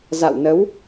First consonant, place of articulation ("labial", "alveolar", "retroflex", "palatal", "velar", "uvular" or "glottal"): alveolar